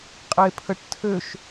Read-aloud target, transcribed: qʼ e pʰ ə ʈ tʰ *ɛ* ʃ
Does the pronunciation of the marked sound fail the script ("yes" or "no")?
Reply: yes